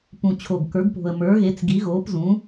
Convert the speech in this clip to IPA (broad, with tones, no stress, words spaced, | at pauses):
pũ˨˩t͡ɕʰo˨˩ɡ kə˞˩˥ɡpo̤˨˩ə̯ mə˞˩˥ɣe˩˥t͡sɡi˩˥ ɣoː˩˥pzũ˩˥